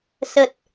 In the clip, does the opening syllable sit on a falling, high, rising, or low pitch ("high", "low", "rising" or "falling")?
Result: low